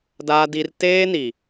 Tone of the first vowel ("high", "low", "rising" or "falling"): high